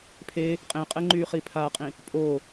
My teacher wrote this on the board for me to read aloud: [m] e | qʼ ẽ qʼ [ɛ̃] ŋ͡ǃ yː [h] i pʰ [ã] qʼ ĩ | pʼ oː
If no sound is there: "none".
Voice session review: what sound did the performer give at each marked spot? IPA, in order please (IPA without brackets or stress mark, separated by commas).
pʰ, ɛ, χ, a